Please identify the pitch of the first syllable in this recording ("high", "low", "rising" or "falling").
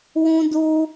high